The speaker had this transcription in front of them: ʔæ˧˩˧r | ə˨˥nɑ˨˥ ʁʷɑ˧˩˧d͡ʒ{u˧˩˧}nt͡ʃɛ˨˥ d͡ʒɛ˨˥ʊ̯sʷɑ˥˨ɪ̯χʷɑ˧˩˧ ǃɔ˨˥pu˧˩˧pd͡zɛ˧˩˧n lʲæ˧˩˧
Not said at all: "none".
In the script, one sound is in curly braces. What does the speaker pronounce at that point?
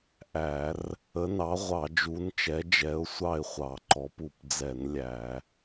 u˨˥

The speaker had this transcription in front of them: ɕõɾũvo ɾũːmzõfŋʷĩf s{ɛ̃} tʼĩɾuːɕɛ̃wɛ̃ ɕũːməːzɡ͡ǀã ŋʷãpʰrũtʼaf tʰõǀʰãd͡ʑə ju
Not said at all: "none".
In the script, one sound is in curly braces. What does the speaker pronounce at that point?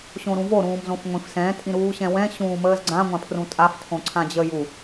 ɛ̃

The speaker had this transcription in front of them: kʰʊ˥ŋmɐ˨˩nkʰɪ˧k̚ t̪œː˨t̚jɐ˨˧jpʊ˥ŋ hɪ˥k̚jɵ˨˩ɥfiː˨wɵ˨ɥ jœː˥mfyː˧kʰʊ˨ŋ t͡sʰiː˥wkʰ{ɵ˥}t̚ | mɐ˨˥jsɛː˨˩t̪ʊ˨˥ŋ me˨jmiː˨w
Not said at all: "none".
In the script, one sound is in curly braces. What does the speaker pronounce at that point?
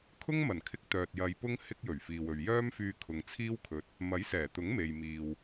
ɵ˨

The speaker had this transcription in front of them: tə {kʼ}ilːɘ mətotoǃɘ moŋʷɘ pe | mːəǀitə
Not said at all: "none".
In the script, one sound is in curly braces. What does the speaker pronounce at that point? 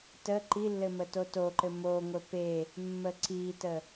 ǃ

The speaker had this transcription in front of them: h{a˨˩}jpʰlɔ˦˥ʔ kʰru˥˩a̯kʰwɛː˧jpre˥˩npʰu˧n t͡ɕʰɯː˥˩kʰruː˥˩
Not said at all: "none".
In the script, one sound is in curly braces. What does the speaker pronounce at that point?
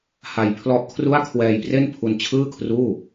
a˧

